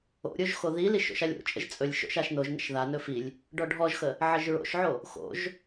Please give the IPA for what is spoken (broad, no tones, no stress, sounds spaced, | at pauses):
o̰ ɾʲ o ʒ x o ð i l i ʃ o̰ ʃ a lʲ o̰ t͡ʃʼ ə̰ ʒ t͡sʼ ɵ lʲ ʃ o̰ ʃ a ʃ n o ʒ n ə̰ ʃ ð a n ɵ f i lʲ | ɖ ɔ ɖʱ ɔ ʒ x ə | ʕ ə ʒ ɹ o̰ ʃ ʕ o | x o̰ ʒ